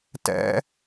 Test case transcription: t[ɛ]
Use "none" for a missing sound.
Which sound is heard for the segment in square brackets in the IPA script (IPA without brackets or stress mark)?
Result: ɛ̰